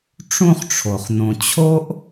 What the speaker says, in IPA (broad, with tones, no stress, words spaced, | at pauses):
ʈ͡ʂũ˦χʈ͡ʂʰo˩χ nõ˩t͡ɕʰo˥ʔ